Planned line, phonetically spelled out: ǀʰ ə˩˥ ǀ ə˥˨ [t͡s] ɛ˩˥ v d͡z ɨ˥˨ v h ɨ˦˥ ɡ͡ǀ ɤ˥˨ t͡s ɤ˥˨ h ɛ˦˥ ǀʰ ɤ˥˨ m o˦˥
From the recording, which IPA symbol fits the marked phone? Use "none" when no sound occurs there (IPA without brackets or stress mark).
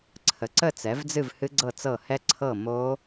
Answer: t͡s